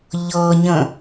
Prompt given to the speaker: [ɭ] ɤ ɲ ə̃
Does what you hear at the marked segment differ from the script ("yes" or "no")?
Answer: yes